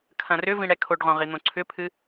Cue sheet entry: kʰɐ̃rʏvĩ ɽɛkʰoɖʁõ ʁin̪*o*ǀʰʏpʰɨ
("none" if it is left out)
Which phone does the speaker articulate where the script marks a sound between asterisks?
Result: õ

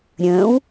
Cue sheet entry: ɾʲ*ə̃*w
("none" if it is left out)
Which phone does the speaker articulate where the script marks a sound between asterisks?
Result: ə̃ː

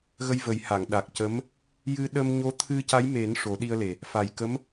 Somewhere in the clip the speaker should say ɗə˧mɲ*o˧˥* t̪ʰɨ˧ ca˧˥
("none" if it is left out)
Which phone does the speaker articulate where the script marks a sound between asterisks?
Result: o˧˥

